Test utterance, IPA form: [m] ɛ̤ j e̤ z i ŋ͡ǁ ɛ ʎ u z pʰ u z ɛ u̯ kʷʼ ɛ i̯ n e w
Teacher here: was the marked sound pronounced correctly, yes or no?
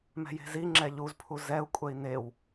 yes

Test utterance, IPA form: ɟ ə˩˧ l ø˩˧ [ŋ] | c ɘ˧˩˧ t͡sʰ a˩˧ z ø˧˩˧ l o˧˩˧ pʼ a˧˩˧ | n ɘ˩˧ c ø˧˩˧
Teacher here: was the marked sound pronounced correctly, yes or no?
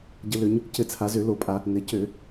no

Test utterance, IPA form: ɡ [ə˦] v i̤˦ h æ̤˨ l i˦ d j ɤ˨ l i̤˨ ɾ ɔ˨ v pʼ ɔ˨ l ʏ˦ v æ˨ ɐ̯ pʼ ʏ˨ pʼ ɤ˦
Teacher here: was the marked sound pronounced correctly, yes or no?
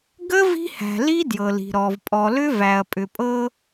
yes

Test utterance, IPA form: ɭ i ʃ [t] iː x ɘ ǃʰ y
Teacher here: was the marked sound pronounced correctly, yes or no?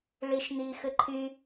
no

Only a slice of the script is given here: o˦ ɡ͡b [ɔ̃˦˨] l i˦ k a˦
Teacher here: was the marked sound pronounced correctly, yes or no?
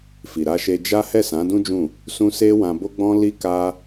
no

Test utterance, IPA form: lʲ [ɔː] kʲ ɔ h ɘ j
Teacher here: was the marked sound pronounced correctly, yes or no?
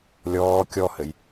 yes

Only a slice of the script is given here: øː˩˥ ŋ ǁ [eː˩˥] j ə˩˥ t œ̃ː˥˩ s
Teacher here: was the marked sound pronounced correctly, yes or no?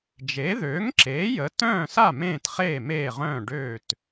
yes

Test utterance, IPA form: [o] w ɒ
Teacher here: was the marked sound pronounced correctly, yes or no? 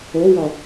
yes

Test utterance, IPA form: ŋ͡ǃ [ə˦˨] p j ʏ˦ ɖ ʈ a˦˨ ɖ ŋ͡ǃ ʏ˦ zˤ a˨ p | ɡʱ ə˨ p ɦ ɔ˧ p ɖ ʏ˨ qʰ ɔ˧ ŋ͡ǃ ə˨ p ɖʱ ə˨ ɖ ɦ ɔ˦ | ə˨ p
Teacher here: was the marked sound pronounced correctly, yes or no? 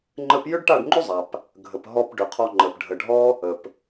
no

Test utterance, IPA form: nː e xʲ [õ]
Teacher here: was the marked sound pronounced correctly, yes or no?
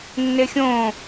yes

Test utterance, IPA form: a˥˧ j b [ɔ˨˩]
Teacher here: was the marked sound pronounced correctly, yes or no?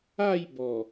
yes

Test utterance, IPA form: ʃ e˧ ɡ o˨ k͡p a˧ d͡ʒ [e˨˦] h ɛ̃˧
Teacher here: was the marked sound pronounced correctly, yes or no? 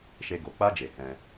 no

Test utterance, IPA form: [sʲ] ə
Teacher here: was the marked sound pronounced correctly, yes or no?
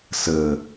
no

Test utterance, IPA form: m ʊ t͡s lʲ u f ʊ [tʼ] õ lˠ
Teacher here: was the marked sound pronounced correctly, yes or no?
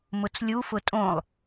yes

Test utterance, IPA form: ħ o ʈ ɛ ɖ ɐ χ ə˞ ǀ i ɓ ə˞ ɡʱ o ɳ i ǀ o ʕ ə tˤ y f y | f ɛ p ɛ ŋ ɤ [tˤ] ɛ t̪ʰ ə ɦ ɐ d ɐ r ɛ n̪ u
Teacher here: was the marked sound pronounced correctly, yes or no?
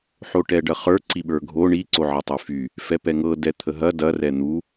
no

